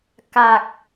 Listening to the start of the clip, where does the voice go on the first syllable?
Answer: low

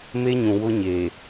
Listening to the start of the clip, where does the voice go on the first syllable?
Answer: high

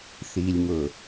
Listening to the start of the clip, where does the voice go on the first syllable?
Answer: low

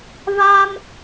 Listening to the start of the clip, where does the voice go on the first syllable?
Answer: high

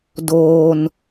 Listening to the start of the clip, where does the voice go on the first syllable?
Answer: low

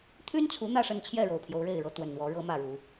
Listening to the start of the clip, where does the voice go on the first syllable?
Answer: high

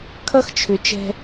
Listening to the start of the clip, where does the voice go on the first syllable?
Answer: high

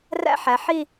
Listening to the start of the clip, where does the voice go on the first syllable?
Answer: high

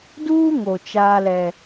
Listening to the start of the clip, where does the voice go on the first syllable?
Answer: high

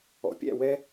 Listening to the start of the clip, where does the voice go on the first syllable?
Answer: low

